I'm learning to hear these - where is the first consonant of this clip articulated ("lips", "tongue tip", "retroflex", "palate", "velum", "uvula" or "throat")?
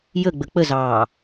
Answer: palate